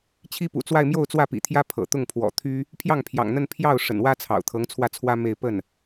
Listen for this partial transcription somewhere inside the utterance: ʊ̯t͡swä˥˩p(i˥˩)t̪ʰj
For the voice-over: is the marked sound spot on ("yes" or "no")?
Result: no